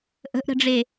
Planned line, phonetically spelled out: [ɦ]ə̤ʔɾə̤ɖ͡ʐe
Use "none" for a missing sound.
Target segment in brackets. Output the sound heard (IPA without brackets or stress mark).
ʔ